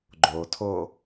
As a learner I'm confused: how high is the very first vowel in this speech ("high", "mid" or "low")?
mid